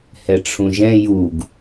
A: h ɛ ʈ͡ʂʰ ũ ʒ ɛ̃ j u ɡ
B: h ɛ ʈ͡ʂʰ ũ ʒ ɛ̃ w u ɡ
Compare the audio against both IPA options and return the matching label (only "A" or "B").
A